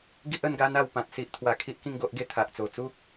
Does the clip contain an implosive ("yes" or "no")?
no